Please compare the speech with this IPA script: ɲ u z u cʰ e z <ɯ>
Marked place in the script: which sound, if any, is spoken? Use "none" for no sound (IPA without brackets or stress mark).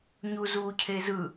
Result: ɯ